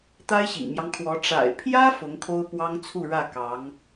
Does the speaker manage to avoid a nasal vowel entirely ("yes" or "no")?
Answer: yes